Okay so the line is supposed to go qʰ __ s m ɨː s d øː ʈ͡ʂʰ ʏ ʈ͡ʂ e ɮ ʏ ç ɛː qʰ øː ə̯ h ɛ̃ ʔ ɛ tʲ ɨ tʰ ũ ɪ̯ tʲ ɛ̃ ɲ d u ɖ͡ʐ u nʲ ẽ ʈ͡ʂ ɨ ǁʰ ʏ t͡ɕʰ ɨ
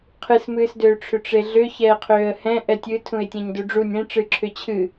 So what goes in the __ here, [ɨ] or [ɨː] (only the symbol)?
ɨ